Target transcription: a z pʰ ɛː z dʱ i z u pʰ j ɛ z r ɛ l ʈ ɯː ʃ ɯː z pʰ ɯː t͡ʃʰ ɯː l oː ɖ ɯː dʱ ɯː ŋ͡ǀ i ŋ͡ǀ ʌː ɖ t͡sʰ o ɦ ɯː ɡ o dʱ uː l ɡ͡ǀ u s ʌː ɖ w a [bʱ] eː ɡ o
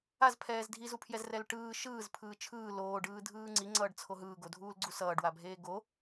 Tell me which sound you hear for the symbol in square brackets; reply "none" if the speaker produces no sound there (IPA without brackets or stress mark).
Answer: bʱ